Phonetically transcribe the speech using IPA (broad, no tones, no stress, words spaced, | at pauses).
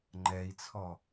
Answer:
ŋ͡ǃɛi̯t͡sʰɔ